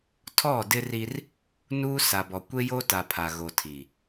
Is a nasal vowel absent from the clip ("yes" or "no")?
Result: yes